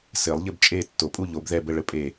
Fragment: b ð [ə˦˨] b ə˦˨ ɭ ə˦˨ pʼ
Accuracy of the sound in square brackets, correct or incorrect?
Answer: incorrect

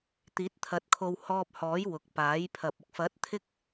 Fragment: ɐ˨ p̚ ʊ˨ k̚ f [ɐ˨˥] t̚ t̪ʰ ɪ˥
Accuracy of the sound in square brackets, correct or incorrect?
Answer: correct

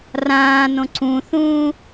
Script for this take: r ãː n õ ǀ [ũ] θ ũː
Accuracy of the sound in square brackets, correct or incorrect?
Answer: correct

